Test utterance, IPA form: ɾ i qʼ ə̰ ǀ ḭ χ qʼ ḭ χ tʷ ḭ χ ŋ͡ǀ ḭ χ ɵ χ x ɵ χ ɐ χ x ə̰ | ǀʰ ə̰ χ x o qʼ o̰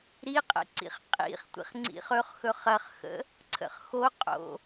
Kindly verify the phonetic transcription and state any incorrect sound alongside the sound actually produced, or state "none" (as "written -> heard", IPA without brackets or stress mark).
none